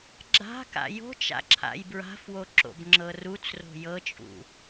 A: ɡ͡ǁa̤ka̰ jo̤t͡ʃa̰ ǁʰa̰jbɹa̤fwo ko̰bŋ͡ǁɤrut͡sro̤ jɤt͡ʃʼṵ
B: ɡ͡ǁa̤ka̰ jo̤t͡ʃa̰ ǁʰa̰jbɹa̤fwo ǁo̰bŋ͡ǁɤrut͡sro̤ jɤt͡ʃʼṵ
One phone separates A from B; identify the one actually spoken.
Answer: B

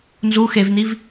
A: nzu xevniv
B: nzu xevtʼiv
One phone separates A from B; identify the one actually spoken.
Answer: A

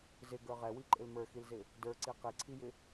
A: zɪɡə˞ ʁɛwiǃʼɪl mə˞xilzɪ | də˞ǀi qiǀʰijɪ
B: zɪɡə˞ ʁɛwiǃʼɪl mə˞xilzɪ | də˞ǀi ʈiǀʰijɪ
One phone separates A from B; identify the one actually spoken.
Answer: A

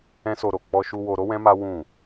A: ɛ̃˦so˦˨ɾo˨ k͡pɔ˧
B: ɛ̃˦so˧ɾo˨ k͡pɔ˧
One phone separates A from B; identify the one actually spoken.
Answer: B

